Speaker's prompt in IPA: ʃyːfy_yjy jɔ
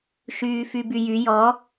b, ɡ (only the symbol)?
b